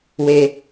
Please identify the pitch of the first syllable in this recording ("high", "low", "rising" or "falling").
high